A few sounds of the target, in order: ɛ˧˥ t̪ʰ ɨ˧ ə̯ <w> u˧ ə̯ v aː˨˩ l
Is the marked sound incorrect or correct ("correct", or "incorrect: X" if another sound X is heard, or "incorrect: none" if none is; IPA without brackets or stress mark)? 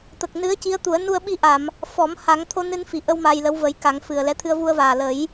incorrect: v